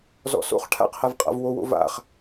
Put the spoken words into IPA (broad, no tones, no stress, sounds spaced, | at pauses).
z ɔ̰ s o̰ χ ʈʰ a̰ q h a v qʼ a̰ v w o w o̰ v a̰ χ